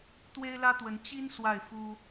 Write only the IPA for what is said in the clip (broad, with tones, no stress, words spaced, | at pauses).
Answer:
t̪we˥ɪ̯lä˥t̪wə˧˥n t͡ɕi˥n swa˥˩ɪ̯fu˥